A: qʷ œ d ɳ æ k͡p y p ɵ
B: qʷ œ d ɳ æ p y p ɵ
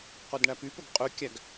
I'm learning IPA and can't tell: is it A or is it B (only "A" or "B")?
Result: B